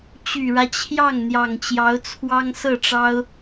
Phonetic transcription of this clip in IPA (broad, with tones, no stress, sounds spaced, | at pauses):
t͡ɕ y˨˩ ɻ ä˦ t͡ɕʰ j ɑ˥˩ ŋ n̪ j ɑ˨˩ ŋ t͡ɕ j ɑ˧˥ ʊ̯ t͡sʰ w ɑ˥ ŋ s ɤ˥˩ ʈ͡ʂ ɑ˥ ʊ̯